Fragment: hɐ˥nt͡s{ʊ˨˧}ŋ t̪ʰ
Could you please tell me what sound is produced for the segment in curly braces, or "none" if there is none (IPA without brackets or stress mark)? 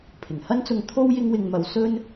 ʊ˧